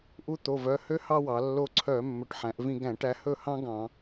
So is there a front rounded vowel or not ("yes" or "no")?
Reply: yes